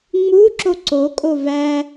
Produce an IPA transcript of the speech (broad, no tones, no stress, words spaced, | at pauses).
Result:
ŋ͡muǁo ǀokʼo væ